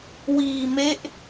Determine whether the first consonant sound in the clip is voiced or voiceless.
voiced